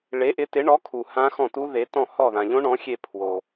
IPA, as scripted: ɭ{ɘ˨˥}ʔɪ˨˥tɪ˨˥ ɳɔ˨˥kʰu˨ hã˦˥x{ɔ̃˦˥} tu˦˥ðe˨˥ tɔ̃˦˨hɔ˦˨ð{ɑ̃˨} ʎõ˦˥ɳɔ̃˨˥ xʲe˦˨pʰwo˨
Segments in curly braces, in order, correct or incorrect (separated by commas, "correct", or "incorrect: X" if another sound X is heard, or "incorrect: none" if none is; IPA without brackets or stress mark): incorrect: e˨˥, incorrect: ɔ̃˦˨, incorrect: ã˨